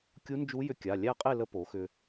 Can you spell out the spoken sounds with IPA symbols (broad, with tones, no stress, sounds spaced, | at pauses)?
kʲ u˧˥ n d͡ʒ u˧˥ j ʏ˧ kʲ a˩˧˩ lʲ æ˥˨ qʼ e˥˨ l ə˥ p o˩˥ x ʏ˧